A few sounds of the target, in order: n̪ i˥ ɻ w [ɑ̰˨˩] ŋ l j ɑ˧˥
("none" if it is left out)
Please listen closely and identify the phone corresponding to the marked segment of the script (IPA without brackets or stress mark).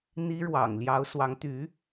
ɑ̰˨˩